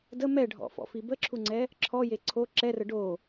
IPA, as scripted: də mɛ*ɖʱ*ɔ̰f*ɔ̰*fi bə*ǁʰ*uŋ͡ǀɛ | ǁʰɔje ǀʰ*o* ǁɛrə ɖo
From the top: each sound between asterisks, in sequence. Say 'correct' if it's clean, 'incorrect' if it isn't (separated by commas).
correct, correct, correct, correct